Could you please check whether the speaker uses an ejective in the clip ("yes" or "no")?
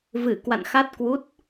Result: no